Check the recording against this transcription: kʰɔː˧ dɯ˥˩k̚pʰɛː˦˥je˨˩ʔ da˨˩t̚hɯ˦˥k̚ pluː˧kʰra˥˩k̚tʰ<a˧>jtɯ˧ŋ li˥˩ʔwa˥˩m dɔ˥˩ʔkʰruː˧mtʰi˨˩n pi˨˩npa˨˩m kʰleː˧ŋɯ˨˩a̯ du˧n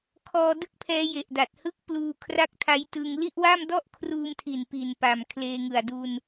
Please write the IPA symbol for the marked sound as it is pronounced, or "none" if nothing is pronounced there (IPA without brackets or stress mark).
a˦˥